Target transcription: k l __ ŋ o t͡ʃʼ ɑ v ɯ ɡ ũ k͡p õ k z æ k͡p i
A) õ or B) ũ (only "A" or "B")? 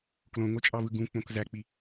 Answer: A